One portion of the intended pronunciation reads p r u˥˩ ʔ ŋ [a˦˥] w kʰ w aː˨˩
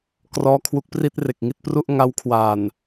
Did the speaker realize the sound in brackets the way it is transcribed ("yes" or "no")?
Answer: yes